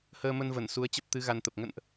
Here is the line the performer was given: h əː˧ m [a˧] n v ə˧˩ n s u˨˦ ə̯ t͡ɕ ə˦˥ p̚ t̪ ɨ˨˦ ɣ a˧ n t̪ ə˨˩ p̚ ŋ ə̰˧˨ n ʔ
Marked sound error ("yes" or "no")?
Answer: yes